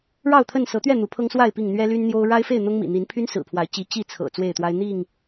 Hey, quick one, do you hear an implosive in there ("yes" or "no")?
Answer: no